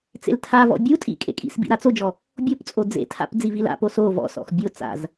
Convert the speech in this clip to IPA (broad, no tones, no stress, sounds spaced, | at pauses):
t͡s ḛ l tʰ a v ɔ̰ bʲ u tʼ ḭ kʼ ḛ kʼ ḭ s b ḭ ɾ a t͡s o d͡ʒ ɔ | bʲ o p t͡sʼ o d͡z ḛ tʰ a̰ p d͡z i v i l a̰ p o s o v ɔ̰ s ɔ̰ x bʲ o t͡s a̰ z